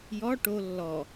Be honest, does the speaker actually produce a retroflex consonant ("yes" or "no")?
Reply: yes